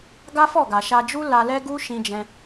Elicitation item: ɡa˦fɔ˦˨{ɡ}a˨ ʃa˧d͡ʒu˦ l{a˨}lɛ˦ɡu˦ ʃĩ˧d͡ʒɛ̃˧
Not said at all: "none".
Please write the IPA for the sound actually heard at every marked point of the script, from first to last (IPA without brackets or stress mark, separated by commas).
ɡ, a˧